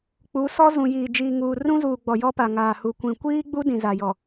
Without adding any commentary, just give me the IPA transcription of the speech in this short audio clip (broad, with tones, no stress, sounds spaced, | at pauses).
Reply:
k͡p u˨˦ s ɔ˦ z ũ˨ j iː˨ d͡ʒ iː˨ ŋ uː˨ r ũ˦ z uː˨ ɡ͡b ɔ˨ j ɔ˦ p a˨ ŋ aː˨ h u˨ kʷ ĩ˨ kʷ iː˦ ɡ͡b u˦ d ĩ˨ z a˨ j ɔ˨